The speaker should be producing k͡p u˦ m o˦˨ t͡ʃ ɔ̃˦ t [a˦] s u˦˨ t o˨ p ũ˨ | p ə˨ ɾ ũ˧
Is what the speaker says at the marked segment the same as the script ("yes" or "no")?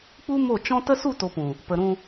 no